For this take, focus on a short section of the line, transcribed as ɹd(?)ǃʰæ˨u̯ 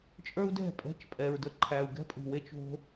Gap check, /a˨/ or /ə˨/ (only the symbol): ə˨